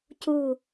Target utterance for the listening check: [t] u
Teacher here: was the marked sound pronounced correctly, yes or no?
no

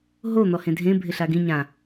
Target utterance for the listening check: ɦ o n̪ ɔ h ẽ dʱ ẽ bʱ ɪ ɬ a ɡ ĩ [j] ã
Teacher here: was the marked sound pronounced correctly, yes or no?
no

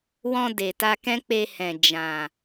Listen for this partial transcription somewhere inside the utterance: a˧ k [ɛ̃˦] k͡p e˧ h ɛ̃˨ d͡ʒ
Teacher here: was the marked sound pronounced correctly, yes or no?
yes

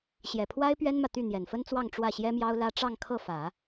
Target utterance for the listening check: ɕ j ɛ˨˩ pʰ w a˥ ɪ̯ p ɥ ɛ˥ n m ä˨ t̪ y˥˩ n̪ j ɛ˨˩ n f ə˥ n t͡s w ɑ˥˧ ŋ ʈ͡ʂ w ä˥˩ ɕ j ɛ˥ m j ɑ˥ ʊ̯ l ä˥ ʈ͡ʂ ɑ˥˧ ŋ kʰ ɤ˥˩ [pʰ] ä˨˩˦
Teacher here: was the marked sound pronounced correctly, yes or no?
no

